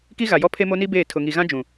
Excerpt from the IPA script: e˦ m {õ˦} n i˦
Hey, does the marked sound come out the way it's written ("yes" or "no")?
no